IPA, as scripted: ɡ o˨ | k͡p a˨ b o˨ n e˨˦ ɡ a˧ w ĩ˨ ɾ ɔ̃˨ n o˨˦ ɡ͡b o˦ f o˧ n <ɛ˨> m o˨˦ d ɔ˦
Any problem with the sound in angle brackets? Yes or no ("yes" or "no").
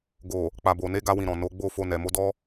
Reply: no